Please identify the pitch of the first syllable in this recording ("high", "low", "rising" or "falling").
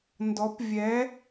rising